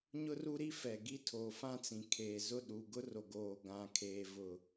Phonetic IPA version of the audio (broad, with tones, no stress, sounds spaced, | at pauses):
ɲ ʊ˦ r u˦ ɾ i˦ f ɛ˨ ɡ i˦ tʰ oː˨ f ã˦ t͡s ĩ˨ kʰ eː˨ z ʊ˦˨ ɗ u˨ ɡ ʊ˦ r o˨ ɡ oː˨ ɡ ã˨ kʰ eː˨ v ʊ˨